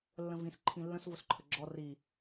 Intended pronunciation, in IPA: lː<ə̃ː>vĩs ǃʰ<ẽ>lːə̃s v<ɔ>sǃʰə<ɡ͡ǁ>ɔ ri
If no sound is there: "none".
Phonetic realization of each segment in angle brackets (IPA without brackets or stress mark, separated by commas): ə̃, ĩ, ʊ, ɡ͡ǁ